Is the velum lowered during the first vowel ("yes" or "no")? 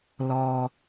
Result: no